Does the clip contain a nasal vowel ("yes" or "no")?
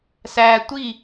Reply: no